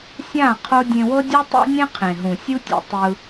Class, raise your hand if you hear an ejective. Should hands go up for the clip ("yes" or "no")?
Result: no